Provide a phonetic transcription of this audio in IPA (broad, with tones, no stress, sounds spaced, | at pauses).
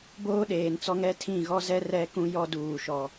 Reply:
b oː˦ ɗ eː˨ n t͡s ɔ˦ ŋ ɛ˦ tʰ ĩ˦˨ ɣ ɔ˦ z ɛ˦ r ɛ˦ k ũ˦ j ɔ˦ d uː˨ ʃ ɔ˨